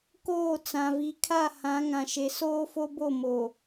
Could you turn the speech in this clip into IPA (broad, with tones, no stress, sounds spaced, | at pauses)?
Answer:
k oː˦˨ t͡s ã˨ v i˨ kʰ a˦˨ h ã˨˦ ŋ ã˨ ʃ e˨ s oː˦ f o˦ b o˦˨ m o˨